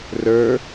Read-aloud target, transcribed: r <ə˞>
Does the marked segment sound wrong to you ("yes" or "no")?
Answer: no